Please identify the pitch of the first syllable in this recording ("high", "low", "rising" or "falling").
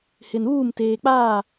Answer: low